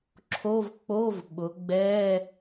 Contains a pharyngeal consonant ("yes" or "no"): no